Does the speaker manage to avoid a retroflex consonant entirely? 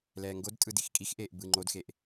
yes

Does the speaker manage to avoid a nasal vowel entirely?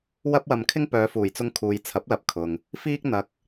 yes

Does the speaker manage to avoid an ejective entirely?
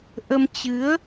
yes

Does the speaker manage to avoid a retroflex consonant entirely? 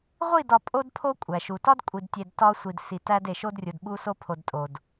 yes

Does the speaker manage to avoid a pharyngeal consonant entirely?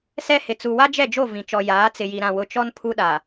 yes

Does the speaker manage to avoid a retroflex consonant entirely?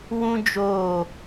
yes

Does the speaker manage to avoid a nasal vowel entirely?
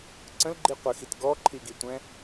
no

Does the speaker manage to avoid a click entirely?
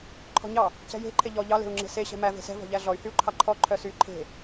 no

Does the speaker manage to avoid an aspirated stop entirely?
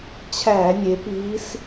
no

